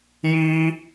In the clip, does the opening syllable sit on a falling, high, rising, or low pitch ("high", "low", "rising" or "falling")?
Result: high